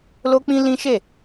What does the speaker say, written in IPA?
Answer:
l o˦ k͡p ĩ˦ l ĩ˦ ʃ e˦˨

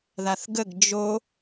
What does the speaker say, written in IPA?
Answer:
ð a θ ɡ ə ɡ d͡ʒ o

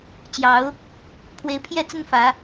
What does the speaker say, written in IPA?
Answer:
t͡ɕ j ɑ˨˦ ʊ̯ | pʰ w e˨˦ ɪ̯ pʰ j ɛ˥˨ t͡s ə˦ n f ä˨˦

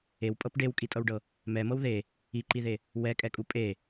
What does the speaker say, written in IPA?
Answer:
e w pʼ ɤ p ɖ e w kʼ i tʼ ɤ w ɖ ɤ | m ɛ m ɤ w ð e | i ǃ i ð e | w ɛ kʼ ɛ kʼ u pʼ e

